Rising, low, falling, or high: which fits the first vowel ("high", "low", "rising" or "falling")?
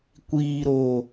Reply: low